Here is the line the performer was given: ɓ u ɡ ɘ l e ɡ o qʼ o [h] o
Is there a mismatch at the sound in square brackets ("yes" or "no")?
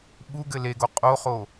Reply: yes